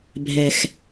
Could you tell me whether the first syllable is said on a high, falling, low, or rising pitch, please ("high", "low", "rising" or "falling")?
low